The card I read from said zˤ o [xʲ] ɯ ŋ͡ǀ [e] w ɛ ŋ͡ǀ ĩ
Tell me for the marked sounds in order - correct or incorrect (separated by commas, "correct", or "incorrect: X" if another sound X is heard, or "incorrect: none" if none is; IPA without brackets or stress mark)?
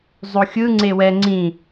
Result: correct, correct